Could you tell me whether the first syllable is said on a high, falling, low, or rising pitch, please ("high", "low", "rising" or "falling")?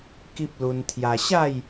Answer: high